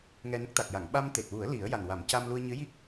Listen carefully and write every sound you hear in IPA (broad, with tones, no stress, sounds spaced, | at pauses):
ŋ ɛ˧ n ə˦˥ k̚ t̪ a˨˩ k̚ j a˨˩˨ ŋ ɓ a˧ m t̪ e˨˩ t̚ w u˨˩˦ ə̯ l i˨˩˦ ə̯ j a˨˩ n w a˨˩˦ m c a˧ m l u˧ ə̯ ɲ ɨ˧˥ j i˦˥ k̚